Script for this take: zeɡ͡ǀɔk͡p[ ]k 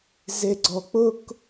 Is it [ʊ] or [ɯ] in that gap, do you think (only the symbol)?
ʊ